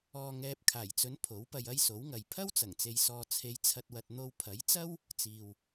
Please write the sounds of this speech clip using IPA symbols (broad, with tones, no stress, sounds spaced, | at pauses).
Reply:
ɔː˨ ŋ ɛː˨ p̚ kʰ aː˨˩ j t͡s ɵ˨˧ n pʰ o˨˥ w p ɐ˧ j ɐ˥ j s o˨˥ w ŋ ɐ˨ j pʰ ɐ˥ w t͡s ɐ˨˩ ŋ t͡s e˨ j s ɔː˨ t͡sʰ e˨˧ j t͡sʰ ɐ˨ t̚ w ɐ˨ t̚ n̪ o˧ w pʰ ɐ˨˥ j t͡s ɐ˥ w | t͡s iː˨ w